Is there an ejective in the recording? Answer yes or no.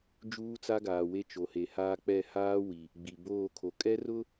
yes